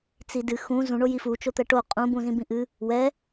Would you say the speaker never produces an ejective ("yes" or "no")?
no